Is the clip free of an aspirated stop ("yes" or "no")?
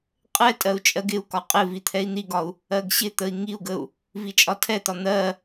no